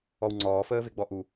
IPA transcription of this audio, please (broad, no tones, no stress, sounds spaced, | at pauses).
ɔ w ŋ͡ǀ ɔː f əː v e ɡ͡b ɔ ʔ u